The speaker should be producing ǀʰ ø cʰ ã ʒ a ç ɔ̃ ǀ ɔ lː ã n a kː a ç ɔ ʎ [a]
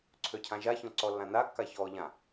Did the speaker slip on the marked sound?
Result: yes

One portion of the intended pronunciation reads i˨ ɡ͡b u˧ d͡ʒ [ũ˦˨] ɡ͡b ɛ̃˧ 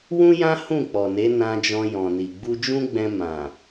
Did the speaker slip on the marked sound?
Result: yes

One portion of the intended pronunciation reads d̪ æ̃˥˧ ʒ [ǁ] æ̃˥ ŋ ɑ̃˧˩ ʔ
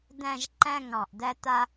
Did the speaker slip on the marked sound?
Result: yes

